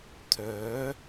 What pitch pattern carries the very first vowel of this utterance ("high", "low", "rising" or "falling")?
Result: rising